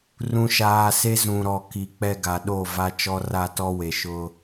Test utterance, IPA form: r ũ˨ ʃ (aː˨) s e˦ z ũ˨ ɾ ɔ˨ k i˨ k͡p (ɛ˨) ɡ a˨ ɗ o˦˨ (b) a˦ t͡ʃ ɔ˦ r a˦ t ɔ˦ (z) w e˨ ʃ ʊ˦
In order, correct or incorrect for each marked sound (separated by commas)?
correct, incorrect, incorrect, incorrect